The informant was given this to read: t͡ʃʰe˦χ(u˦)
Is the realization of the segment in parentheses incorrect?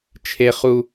no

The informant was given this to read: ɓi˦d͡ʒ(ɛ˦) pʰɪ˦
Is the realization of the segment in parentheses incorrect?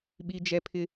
no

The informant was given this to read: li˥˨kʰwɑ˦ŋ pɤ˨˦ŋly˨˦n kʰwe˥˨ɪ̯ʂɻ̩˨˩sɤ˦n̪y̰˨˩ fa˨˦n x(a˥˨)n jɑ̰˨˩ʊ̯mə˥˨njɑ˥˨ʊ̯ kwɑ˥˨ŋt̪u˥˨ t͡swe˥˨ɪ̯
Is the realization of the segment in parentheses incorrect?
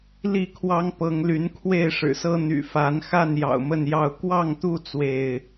no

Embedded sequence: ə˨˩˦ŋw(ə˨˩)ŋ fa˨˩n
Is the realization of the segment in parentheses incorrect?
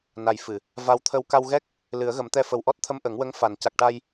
yes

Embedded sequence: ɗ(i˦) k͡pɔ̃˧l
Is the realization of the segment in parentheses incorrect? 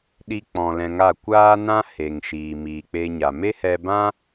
no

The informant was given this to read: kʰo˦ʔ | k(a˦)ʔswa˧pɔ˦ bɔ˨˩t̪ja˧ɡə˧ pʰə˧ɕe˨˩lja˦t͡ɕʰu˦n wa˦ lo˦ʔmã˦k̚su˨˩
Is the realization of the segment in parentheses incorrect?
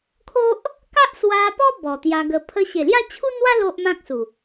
no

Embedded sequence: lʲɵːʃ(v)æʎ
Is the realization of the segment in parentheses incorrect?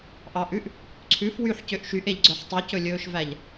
no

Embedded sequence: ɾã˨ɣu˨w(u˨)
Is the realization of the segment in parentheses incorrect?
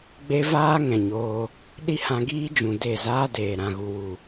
no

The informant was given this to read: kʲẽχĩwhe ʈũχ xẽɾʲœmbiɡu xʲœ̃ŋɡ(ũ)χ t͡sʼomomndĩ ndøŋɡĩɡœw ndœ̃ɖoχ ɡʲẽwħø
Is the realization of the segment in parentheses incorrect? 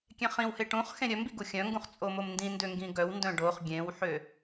no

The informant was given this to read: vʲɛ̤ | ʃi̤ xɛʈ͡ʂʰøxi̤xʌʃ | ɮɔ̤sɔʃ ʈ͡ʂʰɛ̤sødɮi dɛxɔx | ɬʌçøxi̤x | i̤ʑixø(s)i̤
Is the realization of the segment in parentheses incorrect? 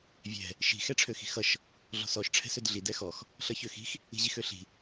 yes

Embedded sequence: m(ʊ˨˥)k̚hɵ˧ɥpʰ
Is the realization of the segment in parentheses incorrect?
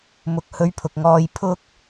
no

